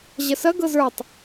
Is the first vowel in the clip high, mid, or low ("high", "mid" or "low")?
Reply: low